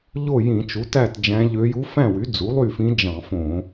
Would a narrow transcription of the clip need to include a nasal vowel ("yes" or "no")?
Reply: yes